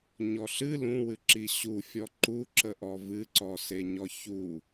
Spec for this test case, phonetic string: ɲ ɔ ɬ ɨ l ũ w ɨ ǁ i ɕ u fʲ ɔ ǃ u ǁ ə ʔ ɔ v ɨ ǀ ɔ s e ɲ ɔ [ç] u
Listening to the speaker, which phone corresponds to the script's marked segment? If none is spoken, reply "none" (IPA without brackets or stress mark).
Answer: ç